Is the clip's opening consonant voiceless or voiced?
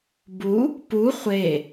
voiced